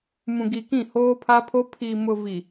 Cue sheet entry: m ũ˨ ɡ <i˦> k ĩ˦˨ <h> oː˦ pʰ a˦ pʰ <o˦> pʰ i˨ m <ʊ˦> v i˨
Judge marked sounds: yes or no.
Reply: no, yes, yes, no

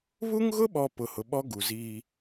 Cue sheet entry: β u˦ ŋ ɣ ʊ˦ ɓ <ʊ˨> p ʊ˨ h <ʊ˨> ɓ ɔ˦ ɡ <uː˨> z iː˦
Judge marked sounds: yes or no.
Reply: no, yes, no

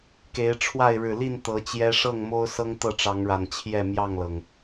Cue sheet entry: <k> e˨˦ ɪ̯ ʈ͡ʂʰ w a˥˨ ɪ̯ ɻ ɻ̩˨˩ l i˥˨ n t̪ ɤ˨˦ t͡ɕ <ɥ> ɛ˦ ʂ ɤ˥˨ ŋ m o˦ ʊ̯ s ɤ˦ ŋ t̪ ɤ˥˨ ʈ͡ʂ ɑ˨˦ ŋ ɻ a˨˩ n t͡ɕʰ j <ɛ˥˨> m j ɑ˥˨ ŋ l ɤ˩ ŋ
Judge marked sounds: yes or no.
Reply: yes, no, yes

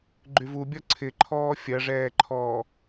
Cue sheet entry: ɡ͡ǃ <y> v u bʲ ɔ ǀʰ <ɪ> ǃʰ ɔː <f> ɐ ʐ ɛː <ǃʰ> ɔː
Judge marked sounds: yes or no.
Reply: yes, yes, no, yes

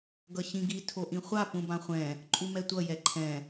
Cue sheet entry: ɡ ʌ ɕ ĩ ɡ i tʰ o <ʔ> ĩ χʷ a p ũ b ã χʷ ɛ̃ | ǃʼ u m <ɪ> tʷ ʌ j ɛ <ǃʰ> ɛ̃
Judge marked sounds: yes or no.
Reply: yes, no, yes

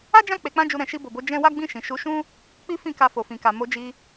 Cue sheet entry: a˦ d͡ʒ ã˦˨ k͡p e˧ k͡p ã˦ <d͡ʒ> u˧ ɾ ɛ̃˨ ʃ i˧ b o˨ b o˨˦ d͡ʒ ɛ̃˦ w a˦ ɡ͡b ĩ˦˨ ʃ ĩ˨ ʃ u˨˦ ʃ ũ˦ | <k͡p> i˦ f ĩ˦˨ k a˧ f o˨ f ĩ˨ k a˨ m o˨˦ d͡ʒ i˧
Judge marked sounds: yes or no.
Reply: yes, yes

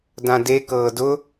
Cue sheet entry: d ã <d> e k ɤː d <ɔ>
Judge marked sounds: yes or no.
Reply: yes, no

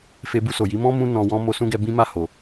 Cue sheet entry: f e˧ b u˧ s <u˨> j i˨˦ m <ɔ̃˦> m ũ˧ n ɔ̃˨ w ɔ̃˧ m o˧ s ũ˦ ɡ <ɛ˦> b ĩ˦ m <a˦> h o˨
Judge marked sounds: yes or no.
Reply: no, yes, no, no

